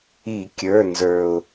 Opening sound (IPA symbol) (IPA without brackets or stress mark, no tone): i